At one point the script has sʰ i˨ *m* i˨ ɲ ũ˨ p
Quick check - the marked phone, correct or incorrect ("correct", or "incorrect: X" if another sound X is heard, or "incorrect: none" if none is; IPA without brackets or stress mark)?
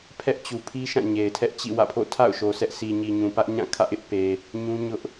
incorrect: ɲ